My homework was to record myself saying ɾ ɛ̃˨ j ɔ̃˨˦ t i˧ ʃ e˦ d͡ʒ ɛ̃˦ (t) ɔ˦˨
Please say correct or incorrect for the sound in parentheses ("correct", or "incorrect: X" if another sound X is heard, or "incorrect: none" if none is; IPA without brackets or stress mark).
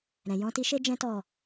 correct